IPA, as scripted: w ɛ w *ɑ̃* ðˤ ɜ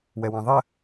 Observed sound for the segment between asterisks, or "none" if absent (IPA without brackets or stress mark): ɑ̃